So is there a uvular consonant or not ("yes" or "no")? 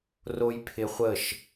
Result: yes